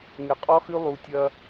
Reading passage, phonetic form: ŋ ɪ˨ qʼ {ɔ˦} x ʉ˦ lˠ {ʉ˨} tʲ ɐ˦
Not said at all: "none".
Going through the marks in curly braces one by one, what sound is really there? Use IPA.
ɔ˦, u˨

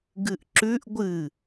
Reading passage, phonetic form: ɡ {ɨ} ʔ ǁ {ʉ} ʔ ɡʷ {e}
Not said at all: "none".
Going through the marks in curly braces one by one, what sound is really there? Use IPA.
ɨ, ʉ, ɨ

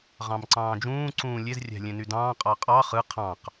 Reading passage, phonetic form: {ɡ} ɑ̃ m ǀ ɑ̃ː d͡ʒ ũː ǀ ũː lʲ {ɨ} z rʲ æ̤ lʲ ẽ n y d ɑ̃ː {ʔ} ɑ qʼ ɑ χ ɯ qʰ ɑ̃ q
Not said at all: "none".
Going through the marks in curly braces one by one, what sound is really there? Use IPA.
ʁ, e, qʼ

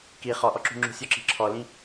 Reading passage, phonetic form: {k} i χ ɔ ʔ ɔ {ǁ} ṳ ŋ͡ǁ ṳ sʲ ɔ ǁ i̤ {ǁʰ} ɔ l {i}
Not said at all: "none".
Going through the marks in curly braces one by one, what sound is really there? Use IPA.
k, ǁ, ǁʰ, ĩ

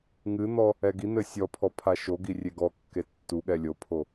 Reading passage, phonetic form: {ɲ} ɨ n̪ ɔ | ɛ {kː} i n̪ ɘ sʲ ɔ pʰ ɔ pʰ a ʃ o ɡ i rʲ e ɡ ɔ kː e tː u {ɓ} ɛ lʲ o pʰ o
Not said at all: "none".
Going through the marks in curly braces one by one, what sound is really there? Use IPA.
ŋ, ɡ, ɠ

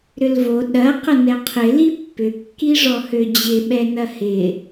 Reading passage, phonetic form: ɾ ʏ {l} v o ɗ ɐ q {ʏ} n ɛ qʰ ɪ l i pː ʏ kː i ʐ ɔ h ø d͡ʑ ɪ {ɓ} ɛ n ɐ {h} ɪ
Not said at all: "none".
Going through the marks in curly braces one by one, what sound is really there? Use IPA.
l, ə, ɓ, h

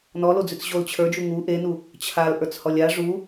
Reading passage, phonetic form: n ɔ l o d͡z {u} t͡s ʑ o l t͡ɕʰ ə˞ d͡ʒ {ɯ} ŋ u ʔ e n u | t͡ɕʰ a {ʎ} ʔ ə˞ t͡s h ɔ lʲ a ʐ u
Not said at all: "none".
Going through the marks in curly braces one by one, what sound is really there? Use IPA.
ʉ, u, l

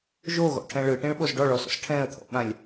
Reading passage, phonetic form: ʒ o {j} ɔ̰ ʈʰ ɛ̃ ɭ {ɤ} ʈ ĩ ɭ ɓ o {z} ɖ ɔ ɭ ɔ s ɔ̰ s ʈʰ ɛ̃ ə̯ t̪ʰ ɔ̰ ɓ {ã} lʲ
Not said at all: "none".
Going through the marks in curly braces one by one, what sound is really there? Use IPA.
ɣ, ɯ, z, ã

